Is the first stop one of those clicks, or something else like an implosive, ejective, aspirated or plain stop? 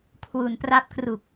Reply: aspirated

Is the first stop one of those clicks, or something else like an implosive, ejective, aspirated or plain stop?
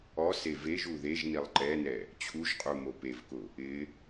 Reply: click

